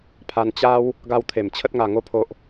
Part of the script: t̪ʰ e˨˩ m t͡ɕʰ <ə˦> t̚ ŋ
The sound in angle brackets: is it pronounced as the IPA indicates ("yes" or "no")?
yes